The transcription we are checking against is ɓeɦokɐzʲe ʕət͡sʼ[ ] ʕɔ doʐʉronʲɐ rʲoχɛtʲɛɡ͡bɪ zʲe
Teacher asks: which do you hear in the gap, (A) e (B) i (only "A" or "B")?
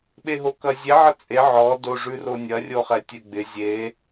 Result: A